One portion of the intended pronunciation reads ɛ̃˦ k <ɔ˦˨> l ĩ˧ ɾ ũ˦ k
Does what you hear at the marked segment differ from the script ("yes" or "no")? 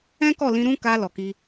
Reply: no